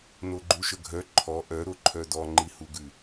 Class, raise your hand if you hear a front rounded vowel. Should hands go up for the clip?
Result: yes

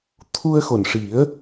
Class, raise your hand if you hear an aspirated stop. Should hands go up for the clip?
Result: yes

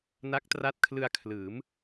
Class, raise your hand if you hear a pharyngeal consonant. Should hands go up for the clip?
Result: no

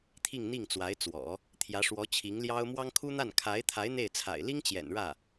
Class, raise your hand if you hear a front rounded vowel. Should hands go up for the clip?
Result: no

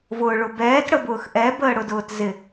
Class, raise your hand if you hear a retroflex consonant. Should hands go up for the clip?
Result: yes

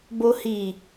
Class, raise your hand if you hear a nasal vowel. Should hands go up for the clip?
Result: no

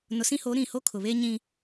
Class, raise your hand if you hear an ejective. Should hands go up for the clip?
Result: no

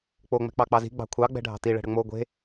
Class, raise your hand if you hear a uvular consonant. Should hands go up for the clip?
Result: no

